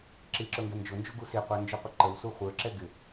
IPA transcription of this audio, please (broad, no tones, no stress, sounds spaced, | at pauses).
ǁ i ǁ ʊ ŋ ɡ ɛ n d͡ʒ ʊ n d͡ʒ u ɡ u s i qʷ æ n d͡ʒ ʊ qʷ ɪ ǃ ə w s u χʷ ə˞ ǁ ɛ ɡ ɪ